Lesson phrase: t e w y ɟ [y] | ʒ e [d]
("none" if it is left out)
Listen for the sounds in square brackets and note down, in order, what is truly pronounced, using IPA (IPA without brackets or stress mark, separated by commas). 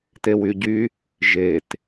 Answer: y, t